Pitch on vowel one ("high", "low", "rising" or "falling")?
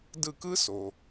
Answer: falling